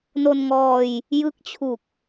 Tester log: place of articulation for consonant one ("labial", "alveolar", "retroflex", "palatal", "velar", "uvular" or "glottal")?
alveolar